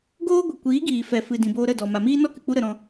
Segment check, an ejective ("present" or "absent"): absent